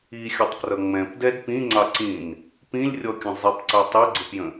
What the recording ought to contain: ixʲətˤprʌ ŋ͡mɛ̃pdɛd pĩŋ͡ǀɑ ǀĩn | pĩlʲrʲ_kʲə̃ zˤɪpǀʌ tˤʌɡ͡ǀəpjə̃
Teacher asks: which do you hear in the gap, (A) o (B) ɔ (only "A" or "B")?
B